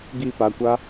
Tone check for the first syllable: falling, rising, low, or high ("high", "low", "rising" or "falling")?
falling